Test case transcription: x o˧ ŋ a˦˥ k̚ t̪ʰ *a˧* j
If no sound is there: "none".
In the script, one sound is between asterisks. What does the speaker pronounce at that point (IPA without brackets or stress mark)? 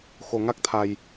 a˧